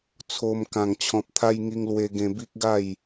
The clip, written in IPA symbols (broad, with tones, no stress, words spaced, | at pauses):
t͡sʰo˧m kã˨˩ŋt͡ɕʰɔ̃˨p̚t̪ʰa˧j ŋi˧ŋlwe˧ɡẽ˧ bi˦k̚ɡa˥˧j